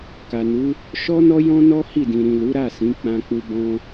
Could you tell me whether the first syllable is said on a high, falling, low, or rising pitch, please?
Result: low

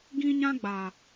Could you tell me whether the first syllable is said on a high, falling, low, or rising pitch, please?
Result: high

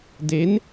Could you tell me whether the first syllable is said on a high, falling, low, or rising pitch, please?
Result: rising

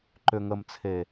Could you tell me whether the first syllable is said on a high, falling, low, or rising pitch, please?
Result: low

